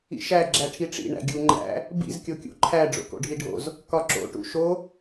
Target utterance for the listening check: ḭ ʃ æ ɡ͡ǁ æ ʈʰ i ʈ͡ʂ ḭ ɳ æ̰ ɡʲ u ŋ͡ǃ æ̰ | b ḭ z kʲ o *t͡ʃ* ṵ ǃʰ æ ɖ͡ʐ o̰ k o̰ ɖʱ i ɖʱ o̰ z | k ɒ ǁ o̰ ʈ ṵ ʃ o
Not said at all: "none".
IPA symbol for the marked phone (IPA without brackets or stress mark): kʲ